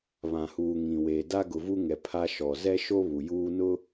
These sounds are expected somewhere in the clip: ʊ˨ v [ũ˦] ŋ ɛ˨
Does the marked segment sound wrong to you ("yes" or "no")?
yes